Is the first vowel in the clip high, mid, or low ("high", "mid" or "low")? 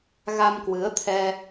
low